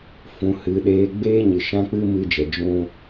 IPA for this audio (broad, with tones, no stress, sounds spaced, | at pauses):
f ũ˨ h ɨ˨ ɗ eː˧ ɡ͡b eː˦ ɲ ɨ˨ ʃ ã˦ k͡p ɨ˦ m ɨ˦ d͡ʒ ɛ˨ d͡ʒ ũ˦